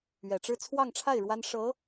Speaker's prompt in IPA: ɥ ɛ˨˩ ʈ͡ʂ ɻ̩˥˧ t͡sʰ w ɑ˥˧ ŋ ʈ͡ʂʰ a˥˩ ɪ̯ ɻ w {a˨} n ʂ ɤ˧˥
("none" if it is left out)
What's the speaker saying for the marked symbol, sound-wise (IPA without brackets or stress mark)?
a˥